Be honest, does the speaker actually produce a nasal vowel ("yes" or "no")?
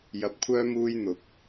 no